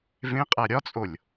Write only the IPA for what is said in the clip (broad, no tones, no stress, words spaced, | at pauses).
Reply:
vẽqʼæ ɾʲɒt͡sʼolʲ